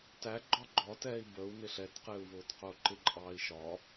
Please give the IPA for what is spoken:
t æ ɡ͡ǃ ɒ ɡ͡ǃ ɒ t ɛː i̯ b ə u̯ n ɪ ɬ ɛ t q ɪː u̯ v ʊː t q ʊː ǃ ɪ ǃʼ ɑː i̯ ʃ ɒ

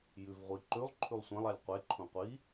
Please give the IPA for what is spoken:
j ʉ v ʁʷ i ǃ ʉ lˠ ǃʰ ʉ lˠ sʷ ɛ̃ lˠ a lʲ qʷ e ǃʰ ũ qʷ i

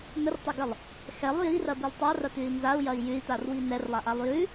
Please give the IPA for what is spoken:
n ə r tˤ ɐ ɡ ə lˠ | x ɛ lˠ j i r ɐ b i lˠ tˤ a r ɐ t ʉ i̯ n z a u̯ j ɐ i̯ j ʉ i̯ t a r w i n ɛ r lˠ a ʔ a lˠ j ʉ

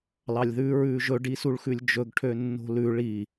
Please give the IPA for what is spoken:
l ɑ lʲ ð ʉː ɹ ʉː ʒ ɵ ɖ i s u ɭ x ʉ lʲ d͡ʒ ɵ ɡ ʈʰ ø nː o̤ l ʉ ɭ i

